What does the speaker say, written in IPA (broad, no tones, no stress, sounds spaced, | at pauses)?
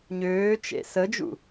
ɲ øː t͡ʃ ḛ s ə d͡ʒ ṵ